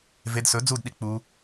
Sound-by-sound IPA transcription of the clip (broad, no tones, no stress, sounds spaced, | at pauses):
v e d s ɵ d͡z u d ɗ i k͡p u